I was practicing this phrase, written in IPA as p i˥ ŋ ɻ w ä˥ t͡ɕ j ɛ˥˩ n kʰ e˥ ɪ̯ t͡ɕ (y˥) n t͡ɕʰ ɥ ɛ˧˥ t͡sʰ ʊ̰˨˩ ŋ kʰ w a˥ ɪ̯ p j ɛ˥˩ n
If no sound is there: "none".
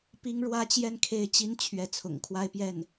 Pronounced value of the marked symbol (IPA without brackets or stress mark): i˥